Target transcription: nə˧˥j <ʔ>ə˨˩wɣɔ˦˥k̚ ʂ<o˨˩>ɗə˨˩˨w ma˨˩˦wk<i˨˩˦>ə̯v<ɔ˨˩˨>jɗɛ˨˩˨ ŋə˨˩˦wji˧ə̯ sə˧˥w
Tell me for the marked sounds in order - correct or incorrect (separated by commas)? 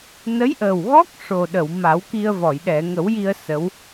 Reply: correct, correct, incorrect, correct